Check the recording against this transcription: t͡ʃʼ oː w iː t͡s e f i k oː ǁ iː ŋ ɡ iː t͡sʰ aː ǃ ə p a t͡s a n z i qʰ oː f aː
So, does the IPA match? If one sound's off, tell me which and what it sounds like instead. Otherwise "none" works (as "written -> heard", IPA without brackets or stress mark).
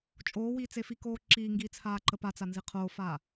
none